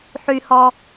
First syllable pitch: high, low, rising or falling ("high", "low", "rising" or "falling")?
low